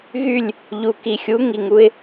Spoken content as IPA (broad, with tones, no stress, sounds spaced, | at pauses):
ɣ y˦˨ lʲ | ʎ u˨ k i˨ xʲ u˨˦ ŋ i˨ ŋ u˦ ɪ̯